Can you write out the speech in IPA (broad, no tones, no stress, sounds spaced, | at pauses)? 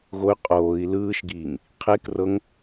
ɣ o y̯ qʼ oː i̯ l ɯː ʃ ɡ iː ŋ | qʰ e k r ɤ ŋ